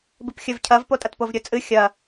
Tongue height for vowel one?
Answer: high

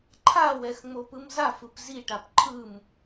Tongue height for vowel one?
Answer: low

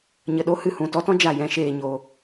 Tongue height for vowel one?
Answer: mid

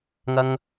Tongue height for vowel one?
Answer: low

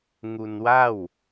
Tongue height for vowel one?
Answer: high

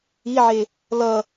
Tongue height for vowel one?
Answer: high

